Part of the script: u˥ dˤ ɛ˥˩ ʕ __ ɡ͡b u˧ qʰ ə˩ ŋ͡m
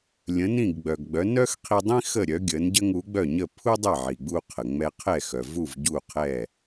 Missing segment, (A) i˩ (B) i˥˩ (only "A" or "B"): A